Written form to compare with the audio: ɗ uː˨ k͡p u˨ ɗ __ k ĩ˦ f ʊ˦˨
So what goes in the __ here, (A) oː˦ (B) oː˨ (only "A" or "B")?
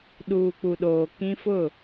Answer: B